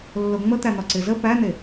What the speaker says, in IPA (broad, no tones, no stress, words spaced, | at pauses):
lːoŋ͡mət̪æn̪ɒ ǀɪzə pæn̪e